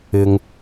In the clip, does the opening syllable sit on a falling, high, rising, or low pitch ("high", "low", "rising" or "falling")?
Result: low